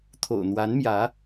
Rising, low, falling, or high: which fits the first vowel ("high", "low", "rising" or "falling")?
low